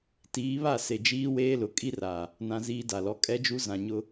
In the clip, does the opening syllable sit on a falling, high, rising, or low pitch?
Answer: rising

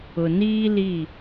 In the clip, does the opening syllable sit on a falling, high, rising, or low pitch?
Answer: low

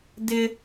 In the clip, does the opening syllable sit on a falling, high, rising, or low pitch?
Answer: high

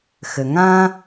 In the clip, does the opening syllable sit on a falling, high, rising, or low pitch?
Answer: low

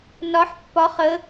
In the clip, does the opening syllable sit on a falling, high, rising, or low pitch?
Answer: rising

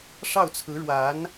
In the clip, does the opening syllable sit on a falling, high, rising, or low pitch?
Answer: falling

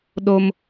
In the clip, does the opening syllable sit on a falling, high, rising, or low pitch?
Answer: high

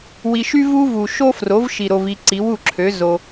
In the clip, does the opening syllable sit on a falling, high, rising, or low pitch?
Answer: low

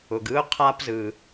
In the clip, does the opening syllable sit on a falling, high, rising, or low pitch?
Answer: low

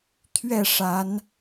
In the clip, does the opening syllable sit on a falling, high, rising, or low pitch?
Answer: falling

